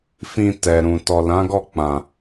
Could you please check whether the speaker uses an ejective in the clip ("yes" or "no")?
no